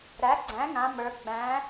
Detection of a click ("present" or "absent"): present